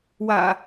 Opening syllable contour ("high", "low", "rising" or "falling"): low